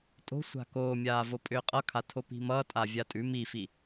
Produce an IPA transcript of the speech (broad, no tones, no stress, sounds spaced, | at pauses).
tʼ o̤ sʷ a̤ k oː mʲ aː v o pʼ ʏː qʼ ʌ kʰ a tʰ o p i̤ m ʌː tʼ a vʲ a tʼ ʉ m i f i